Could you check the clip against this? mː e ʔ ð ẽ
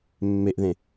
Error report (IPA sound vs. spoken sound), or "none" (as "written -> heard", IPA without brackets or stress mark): none